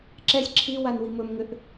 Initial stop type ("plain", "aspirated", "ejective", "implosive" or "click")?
click